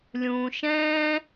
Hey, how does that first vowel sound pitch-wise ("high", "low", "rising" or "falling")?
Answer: low